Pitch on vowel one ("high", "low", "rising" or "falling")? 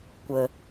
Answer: low